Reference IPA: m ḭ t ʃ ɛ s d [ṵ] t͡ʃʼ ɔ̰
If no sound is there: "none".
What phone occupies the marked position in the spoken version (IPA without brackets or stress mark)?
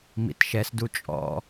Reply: u